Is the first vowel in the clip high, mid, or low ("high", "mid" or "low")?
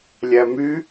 low